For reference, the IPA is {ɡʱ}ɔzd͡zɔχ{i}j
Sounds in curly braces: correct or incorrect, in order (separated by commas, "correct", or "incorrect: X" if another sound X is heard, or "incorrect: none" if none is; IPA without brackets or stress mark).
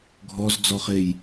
correct, incorrect: e